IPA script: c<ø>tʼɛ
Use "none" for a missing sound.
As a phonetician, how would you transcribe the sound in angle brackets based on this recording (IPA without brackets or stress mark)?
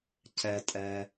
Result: ɛ